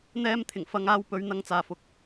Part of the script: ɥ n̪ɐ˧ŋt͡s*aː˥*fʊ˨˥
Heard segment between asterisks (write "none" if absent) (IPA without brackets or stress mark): aː˨